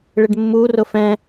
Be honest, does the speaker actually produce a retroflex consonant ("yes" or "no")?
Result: yes